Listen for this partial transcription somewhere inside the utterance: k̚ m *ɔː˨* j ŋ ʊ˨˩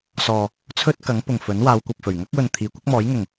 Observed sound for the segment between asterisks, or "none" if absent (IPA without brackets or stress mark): ɔː˨˥